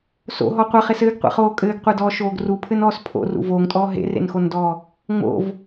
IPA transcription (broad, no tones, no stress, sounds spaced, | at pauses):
s o̰ ɦ ɔ qʷ ɐ χ e s ɘː ɡ qʷ ḛ χ oː kʼ ɘː ɡ qʷ e d ɔː ʃ oː ɡ r u pʰ ɘ n ɔː s pʰ o̰ r ṵ v oː ŋ tʼ ɔː ɦ ḛ r ḛ n x o n d ɔː | ŋ͡m o̰ v